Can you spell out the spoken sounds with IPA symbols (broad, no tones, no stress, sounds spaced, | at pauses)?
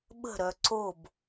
ɓ ə̤ ɾ œ ǀ o b